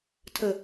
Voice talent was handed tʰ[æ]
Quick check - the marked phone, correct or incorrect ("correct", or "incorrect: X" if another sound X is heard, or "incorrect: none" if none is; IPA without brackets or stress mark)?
incorrect: ə